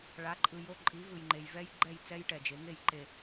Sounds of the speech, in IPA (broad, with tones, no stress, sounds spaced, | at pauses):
ɭ a˨˦ ǃʼ ɯ˨ j o˦ ǃʼ i˨˦ v ɯ˨ j ŋ͡ǃ e˨ j v ɛ˦ j ɡ͡ǃ ɛ˦˨ j t͡s ɛ˦ j ʈ ɛ˨ d͡ʒ e˨˦ ŋ e˦˨ j ǃ e˦˨